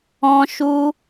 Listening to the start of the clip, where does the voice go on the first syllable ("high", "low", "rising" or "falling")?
high